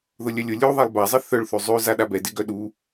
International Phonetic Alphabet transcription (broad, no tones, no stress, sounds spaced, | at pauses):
ð ʊ lʲ œ lʲ ʊ lʲ u ðˤ ɛ lˠ b a zˤ ɪ θ œ ɭ θ ʉ zˤ ʉ z a ɗ a b ɛ d ɪ ɡ œ ɗ u